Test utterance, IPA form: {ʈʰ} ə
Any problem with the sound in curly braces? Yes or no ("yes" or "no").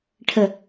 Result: no